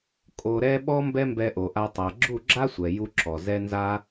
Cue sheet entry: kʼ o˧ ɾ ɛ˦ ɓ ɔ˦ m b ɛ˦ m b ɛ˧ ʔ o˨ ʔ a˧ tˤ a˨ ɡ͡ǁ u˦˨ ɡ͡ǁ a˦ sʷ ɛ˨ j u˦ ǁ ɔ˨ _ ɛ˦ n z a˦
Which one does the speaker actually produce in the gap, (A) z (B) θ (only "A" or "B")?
A